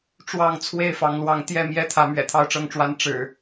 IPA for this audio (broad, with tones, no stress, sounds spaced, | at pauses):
ʈ͡ʂ w ɑ˥˨ ŋ t͡sʰ w e˥˨ ɪ̯ f ɑ˨˦ ŋ l w ɑ˨˦ ŋ t̪ j ɛ˥˨ m j ɛ˦ t̪ʰ ä˨˦ m ɥ ɛ̰˨˩ t̪ʰ ɑ˥˨ ʊ̯ ʈ͡ʂ ɤ˥˨ ŋ ʈ͡ʂ w a˦ n ʈ͡ʂ ɻ̩˨˩